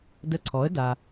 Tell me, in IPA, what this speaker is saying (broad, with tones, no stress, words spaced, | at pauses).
də˧ǀʰɔ˩˥ə̯ da˩